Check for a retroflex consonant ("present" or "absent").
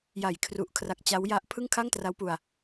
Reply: absent